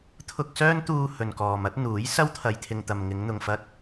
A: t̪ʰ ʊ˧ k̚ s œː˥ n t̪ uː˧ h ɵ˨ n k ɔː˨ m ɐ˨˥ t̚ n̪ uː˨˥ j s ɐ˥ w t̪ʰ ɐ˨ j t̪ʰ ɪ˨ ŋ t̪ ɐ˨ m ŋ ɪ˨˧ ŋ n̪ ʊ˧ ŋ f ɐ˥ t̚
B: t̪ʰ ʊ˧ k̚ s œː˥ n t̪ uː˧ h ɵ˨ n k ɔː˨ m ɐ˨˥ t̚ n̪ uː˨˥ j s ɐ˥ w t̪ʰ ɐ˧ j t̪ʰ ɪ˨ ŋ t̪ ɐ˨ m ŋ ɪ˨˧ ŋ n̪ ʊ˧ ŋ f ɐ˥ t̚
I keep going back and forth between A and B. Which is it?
A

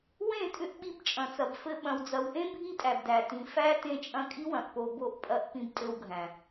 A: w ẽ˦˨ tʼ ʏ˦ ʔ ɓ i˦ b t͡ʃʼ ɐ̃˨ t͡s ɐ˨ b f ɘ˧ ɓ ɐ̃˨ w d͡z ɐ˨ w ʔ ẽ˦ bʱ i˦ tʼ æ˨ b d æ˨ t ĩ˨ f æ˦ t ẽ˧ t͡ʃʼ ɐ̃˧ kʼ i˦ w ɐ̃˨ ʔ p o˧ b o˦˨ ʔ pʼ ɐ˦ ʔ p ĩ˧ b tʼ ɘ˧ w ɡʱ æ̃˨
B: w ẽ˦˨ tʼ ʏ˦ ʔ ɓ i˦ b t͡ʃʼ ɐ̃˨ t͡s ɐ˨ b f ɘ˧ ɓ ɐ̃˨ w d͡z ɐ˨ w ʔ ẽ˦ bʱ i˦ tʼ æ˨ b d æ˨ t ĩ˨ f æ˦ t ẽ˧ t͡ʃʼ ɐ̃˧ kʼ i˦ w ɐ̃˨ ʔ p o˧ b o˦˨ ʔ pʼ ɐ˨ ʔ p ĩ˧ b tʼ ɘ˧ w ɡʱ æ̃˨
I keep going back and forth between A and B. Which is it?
A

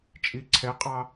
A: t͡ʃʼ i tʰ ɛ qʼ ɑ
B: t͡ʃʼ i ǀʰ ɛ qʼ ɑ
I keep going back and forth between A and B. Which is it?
B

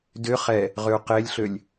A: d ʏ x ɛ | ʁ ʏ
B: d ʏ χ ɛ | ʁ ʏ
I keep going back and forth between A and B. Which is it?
B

